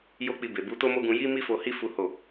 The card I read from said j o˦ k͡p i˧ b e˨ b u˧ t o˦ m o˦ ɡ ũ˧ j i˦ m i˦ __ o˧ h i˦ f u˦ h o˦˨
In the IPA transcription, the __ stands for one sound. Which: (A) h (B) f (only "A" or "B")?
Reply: B